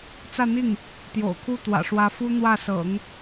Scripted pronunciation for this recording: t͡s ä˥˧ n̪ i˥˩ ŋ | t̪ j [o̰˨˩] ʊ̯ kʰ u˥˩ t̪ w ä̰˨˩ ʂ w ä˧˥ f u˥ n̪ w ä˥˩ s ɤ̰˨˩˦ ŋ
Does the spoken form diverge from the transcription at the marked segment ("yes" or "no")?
no